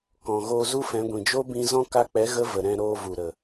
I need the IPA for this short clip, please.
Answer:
kɔ̃˨ ɣoː˧zu˦fɛ̃˨˦ɡʷĩ˨ d͡ʒo˦bĩ˧zɔ̃˦ ka˧k͡pɛ˨˦ ɣə˦və˨ɾɛ̃˧ ɾoː˧vu˨ɾə˨

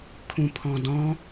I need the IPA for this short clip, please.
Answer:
kʰũpʰɔ̃dɔ̃

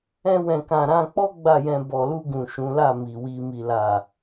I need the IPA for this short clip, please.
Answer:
ɛ̃˧wɛ̃˨kã˨ ɾã˧k͡pɔ˦ ɡ͡ba˦˨jɛ̃˧ bɔ˨lu˧ɡũ˨ ʃũ˨˦la˦˨ mi˨wi˧ mi˨la˨

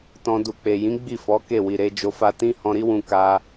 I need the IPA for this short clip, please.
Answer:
tɔ̃˧ du˨k͡pe˨jĩ˨˦ ɡ͡bi˦˨fɔ˨˦ ke˦˨wi˨ɾe˨˦ d͡ʒo˧fa˧ tĩ˦hɔ̃˧ɾi˦wũ˧ ka˧

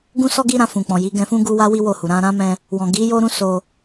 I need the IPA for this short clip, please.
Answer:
ɡũ˦sɔ˦ɡi˦ ɾã˧fũ˨k͡pɔ̃˨ ji˨˦ɡɛ̃˧fũ˦ ɡu˦wa˦ wi˦wo˦˨hu˨ ɾã˧ ɾã˦mɛ̃˧ | wɔ̃˨ɡi˨˦ jo˦ɾũ˦so˧

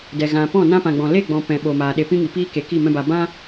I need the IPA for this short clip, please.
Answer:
dɛ˨ ɣã˨ pɔ̃˦˨nã˦pã˨ɡ͡bɔ̃˨ le˦˨ɡ͡bɔ̃˨ pɛ̃˨ɓo˨ maː˨ ɗe˨ pĩ˦ŋi˨piː˦ ke˨˦ki˦˨mɛ̃˦ba˧ bã˦

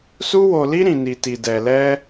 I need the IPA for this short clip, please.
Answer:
su˦wo˧li˦ ɾĩ˧ni˧ti˧ dɛ˧lɛ˦

